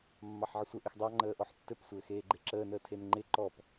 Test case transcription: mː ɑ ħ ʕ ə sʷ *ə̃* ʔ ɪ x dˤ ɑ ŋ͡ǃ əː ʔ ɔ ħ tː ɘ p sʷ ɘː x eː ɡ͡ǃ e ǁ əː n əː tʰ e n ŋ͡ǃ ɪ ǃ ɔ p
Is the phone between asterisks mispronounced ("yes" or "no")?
yes